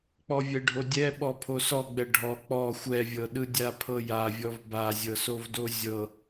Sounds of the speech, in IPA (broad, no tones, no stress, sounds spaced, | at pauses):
k͡p ɔ vʲ ɛ ɖʱ o dʲ ɛ ɓ ɔ pʰ o s ɔ ɡ͡b ɛ ɖʱ ɔ k͡p ɔ xʷ ɛ vʲ ɤ ɗ ɯ dʲ a pʰ ɤ j a vʲ ɔ v b a zʲ ɤ s o v d o zʲ ɤ